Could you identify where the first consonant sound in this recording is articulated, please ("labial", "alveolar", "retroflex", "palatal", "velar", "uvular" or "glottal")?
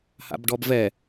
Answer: glottal